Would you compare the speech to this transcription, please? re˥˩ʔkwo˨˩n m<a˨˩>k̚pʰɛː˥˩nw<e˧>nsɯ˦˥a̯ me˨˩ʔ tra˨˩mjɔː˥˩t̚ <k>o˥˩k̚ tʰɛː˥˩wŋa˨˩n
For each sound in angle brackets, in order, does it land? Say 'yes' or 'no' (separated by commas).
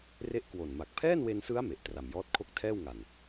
yes, yes, no